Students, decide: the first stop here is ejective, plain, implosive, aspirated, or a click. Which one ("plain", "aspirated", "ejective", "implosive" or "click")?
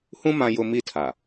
aspirated